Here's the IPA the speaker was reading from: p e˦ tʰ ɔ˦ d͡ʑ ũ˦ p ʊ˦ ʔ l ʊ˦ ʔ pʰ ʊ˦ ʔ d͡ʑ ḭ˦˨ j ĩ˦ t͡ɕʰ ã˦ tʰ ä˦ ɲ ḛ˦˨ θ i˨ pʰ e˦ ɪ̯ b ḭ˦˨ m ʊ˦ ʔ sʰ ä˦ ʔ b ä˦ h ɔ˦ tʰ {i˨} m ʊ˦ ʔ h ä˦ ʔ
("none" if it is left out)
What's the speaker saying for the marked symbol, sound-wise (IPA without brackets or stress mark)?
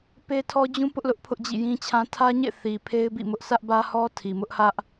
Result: i˨